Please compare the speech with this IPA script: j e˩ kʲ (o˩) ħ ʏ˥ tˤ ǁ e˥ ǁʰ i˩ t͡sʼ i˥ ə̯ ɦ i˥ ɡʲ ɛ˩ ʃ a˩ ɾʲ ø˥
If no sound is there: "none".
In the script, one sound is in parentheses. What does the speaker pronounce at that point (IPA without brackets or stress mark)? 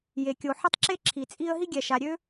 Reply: o˩